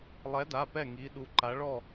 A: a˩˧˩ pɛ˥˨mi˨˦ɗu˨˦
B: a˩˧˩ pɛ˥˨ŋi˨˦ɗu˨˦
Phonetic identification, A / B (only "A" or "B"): B